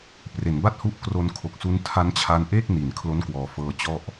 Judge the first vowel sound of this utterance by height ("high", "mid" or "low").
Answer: mid